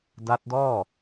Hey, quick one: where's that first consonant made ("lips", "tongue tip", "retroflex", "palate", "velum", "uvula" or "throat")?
tongue tip